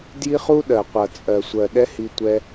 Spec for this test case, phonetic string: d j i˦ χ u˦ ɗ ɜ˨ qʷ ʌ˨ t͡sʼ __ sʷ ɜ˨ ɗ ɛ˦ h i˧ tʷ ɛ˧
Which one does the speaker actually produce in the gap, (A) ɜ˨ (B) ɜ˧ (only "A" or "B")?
A